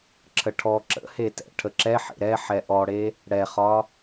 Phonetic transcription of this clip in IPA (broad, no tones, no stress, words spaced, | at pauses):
ǁʰəʈʰɔ ǁə̰he tɛ̰ ʈʰəǁɛ ħḛɾɛ ħɛʔɔɽe | ɽɛχɒ